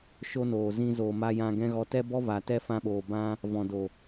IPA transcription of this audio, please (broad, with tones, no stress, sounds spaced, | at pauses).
ʃ o˦ n oː˨ z ĩ˧ z oː˨ m a˧ j ã˧ ɡ ɛ̃˦ ɣ ɔ˧ t ɛ˦ b ɔ˦ v a˨ t ɛ˦ f ã˧ ɓ oː˨ b ã˦ | v ɔ̃˨ d o˨